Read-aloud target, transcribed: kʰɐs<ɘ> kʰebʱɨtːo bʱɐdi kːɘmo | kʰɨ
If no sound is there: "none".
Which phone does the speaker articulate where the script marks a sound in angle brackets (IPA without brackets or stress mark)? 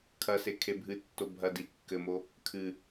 e